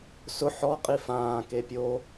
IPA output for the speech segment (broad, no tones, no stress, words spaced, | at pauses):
sʊ ħɔ qʼifãː kepʲo